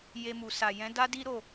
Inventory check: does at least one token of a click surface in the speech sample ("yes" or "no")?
no